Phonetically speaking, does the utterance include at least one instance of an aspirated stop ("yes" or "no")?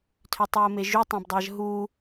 yes